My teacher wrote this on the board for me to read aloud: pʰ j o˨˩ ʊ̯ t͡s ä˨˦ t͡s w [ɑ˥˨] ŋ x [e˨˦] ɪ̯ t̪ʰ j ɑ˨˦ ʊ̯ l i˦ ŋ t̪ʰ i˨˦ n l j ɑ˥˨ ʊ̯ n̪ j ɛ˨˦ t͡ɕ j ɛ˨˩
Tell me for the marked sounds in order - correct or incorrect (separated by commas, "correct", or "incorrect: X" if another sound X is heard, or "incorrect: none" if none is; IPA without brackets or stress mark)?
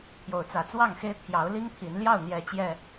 correct, incorrect: e˦